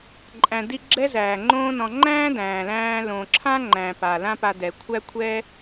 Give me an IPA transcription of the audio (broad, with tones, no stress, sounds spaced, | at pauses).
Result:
ǃʼ æ̃˨ d i˧ ɡ͡ǁ ɛ˦ z æː˨ ŋ͡ǃ õː˦ n ɔ̃˧ ŋ͡ǃ æ̃ː˦ d æ̃ː˨ l æ̃ː˧ l õ˨ ǁʰ ã˦ ŋ͡ǃ æ̃˨ p a˨ l ã˦ p a˧ d ɛ˨ kʷʰ æ˦ kʷʰ ɛ˦